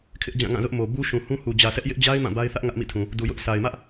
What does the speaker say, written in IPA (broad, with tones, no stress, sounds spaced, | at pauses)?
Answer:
kʰ ɪ˦ ʔ d͡ʑ ã˦˨ ŋ ã˦˨ z ʊ˦ ʔ m o˨ b u˦ ʃ ũ˨ h ũ˦ h u˨ d͡ʑ ä˨ s ɛ˦ ʔ j ɪ˦ ʔ d͡ʑ a˦ ɪ̯ m ã˦˨ b a˦ ɪ̯ θ ä˦ ʔ ŋ ä˦ ʔ m ḭ˦˨ tʰ ũ˨ | d u˨ j ʊ˦ ʔ s a˨ ɪ̯ m ä˦ ʔ